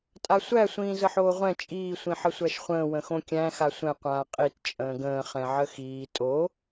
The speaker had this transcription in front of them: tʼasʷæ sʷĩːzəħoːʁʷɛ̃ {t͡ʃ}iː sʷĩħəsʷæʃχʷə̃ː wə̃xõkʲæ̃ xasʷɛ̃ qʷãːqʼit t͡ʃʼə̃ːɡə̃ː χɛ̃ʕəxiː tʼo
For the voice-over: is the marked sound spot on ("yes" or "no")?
no